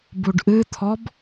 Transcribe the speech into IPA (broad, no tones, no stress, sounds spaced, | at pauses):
b u ɖ ʔ ɨ t̪ʰ ɔ b